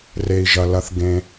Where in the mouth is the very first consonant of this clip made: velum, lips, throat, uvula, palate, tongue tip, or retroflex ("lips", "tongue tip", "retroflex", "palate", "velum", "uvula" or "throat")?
tongue tip